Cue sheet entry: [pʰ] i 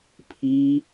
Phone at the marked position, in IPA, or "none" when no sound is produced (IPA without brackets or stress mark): pʰ